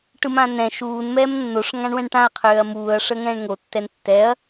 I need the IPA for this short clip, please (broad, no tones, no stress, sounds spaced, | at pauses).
ʈ ɯ m ã n ɛ̃ ʃ uː n m ɛː m nː o ʂ ŋ ã ɳ w ɛ̃ ɳ ʈ ã ɐ̯ qʰ øː ɐ̯ m uː ɐ̯ ʂ əː ŋ ɛ̃ː ɳ ŋ o tː ɛ n tː ɛ ɐ̯